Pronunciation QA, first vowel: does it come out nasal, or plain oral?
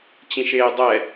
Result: nasal